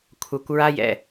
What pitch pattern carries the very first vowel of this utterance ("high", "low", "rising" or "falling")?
low